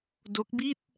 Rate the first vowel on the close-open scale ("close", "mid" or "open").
mid